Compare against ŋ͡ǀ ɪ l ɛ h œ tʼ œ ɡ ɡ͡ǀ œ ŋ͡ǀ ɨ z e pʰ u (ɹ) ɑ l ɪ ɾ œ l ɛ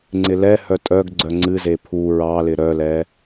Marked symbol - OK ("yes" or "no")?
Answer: yes